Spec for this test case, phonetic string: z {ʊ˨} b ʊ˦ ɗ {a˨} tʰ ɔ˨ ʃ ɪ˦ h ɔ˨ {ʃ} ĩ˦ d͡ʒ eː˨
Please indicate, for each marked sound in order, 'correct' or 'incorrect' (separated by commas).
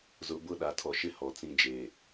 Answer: correct, correct, incorrect